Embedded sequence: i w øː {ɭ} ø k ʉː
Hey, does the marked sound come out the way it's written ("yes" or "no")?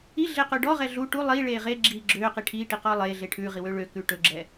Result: yes